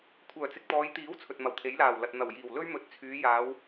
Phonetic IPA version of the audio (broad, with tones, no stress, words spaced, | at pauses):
kʷʰœː˨˩t͡sɪ˨k̚t̪ɔː˨˧jt̪iː˨˥w t͡sʰɵ˨t̚mɐ˨wt̪ʰe˨˥jlaː˨˩w lɐ˨t̚ n̪ɐ˨˩wjiː˨˩w lɵ˥ɥ mɵ˨˥t̚t͡sʰyː˨˧jaː˨˧w